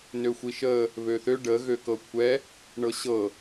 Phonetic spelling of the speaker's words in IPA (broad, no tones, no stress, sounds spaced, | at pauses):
n ø xʷ i ʃ ə | β ø θ ø ɖ ə ɣ ø k ɤ kʷʰ ɛ | ɳ ɤ ɕ ɤ